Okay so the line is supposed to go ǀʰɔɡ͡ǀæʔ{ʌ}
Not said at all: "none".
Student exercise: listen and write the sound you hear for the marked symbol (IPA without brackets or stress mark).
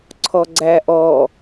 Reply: ɔ